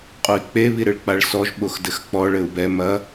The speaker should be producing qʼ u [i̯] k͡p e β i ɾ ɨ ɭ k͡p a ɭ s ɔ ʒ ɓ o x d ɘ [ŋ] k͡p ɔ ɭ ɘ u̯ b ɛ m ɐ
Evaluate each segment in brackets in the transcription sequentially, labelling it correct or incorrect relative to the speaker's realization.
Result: correct, incorrect: x

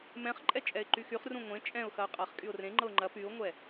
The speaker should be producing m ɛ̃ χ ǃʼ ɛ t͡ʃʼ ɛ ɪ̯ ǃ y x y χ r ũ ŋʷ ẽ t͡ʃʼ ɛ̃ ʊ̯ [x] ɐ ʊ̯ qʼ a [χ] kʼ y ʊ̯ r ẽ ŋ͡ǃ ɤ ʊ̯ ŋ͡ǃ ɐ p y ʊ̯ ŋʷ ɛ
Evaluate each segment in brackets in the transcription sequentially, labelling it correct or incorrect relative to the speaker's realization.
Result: correct, correct

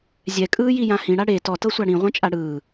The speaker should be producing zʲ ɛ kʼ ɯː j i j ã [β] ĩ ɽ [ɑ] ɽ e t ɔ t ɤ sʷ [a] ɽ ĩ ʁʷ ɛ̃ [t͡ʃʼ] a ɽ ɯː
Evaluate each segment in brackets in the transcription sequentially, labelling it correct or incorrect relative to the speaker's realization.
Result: incorrect: h, incorrect: a, correct, correct

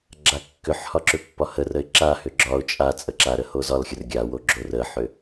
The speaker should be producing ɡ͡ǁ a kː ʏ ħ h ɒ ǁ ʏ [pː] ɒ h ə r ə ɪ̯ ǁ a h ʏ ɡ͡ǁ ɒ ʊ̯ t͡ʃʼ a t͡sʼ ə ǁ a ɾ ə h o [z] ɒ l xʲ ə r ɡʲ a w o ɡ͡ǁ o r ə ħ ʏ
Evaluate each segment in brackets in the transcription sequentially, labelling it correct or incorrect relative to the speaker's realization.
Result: correct, correct

